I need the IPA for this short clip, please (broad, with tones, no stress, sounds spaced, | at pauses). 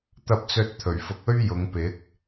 t̪ ɐ˧ p̚ t͡s ɵ˧ t̚ t̪ʰ ɵ˨˩ ɥ f ʊ˨˥ k̚ ɵ˥ ɥ j ʊ˨˧ ŋ p ɪ˨˥ k̚